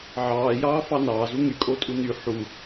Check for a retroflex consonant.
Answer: absent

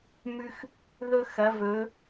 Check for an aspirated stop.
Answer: absent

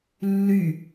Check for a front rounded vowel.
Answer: present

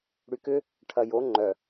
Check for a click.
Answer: present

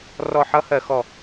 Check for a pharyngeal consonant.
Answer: present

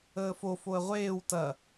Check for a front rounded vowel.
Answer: absent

